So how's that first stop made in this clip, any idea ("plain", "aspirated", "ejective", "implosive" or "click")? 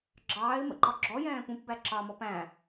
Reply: click